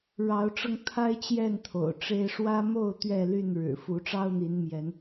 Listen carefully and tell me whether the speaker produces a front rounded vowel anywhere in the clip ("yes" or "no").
yes